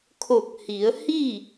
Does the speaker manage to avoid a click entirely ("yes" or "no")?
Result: yes